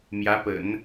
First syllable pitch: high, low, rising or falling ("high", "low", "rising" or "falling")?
rising